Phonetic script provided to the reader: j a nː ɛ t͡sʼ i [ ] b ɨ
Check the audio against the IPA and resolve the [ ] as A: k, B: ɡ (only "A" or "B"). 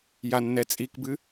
A